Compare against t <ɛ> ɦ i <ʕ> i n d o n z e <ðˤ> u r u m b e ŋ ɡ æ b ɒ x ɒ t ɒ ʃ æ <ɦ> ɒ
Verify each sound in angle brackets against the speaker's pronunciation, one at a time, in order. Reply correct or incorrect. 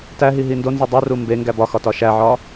incorrect: æ, incorrect: ɦ, incorrect: dˤ, incorrect: ʕ

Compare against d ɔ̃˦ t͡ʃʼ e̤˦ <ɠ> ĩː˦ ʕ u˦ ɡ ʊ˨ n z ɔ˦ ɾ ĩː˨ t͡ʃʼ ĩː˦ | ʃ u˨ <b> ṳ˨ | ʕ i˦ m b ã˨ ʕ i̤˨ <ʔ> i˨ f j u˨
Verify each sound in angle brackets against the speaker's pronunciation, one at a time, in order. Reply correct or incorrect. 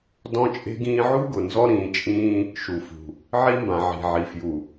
incorrect: ɡ, incorrect: f, incorrect: ʕ

